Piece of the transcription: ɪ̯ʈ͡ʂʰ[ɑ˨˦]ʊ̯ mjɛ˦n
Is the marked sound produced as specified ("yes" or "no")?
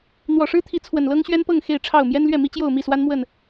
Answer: no